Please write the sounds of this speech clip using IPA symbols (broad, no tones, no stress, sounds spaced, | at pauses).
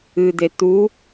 ɨ d̪ e t̪ u